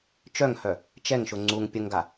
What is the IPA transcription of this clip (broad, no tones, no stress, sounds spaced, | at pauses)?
t͡ʃ œ ŋ h œ | t͡ʃ ɛ ŋ ʃ ʊ ŋ͡ǀ u ŋ pʲ ə ŋ ɡ a